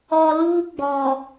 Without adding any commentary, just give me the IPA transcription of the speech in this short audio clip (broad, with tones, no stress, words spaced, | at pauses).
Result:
ɔ˨ luː˦ɡ͡bɔ˨